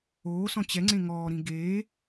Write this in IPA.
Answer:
oː s ɔ̃ t͡ɕ ɛ ŋ͡ǀ ẽ ŋ ɔː ɾ ĩ ɡ eː

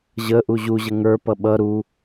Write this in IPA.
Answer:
ʑ ə ʔ u ʑ u ʑ ə ŋ ə˞ p ʌ ɓ ʌ ɾ u

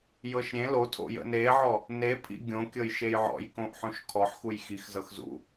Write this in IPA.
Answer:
j ɤ ʃ ɾʲ ẽ l o tʰ o̰ j ə̰ n e ʕ ɔ | n e pʰ ḭ ɡʲ õ kʲ ɤ j ʃ e j ʕ ɔ̰ j k õ ʔ ħ õ ʃ kʰ ɔ ħ x u j x i x z ɤ x z ṵ

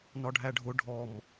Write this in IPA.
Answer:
n ɒ ɖʱ æ ɖʱ ʊ ɖʱ ɔ m

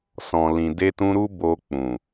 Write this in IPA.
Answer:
s ɔ̃˨ l ĩ˨ d e˧ t ũ˧ ɾ u˦ b o˧ k͡p ũ˨

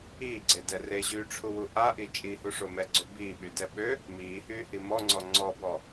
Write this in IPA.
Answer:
iː ɡ͡ǀ e d ɛ r e ʑ yː ʈ͡ʂʰ u w u ʔ a ʔ i t͡ʃʼ i h u ʂ o m ɛ ɡ͡ǀ ø b iː ɓ y d ɛ ɓ ø | m iː h yː h i m ɔ ŋ͡ǀ ɔ ŋ͡ǀ ɔ b ɔ

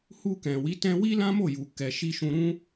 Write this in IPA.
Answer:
h u˧ k ɛ̃˨ w i˨˦ t ɛ̃˧ w i˦ l ã˦ m o˦˨ j u˨ k ɛ˧ ʃ i˦ ʃ ũ˧ ɾ ũ˦

